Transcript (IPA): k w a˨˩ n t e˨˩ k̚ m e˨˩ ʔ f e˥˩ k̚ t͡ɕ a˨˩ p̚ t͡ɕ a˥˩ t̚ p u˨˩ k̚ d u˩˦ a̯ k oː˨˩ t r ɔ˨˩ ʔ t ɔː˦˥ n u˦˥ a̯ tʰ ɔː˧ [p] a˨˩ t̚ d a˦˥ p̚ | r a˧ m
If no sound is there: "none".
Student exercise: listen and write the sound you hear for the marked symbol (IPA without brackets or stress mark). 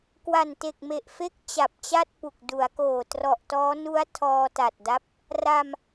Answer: t